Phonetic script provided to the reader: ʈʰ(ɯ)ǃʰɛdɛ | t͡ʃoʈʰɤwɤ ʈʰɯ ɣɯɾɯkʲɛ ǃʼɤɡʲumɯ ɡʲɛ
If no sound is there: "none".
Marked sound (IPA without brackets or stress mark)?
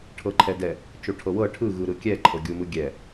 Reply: ɤ